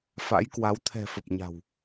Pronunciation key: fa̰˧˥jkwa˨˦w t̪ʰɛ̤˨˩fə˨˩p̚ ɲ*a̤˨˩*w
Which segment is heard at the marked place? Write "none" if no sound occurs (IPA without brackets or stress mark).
a̤˨˩